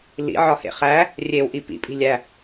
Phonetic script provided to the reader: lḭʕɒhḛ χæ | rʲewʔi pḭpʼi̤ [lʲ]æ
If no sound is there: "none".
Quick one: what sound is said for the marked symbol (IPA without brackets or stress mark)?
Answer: lʲ